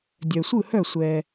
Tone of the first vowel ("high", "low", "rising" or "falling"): low